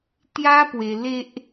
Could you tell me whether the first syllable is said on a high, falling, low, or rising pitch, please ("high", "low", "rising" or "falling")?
high